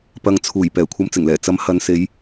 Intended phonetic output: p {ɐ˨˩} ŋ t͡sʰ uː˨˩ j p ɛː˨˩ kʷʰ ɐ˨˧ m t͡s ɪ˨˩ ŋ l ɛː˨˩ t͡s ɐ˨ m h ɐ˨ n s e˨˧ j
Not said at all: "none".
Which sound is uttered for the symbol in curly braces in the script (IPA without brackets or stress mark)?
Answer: ɐ˨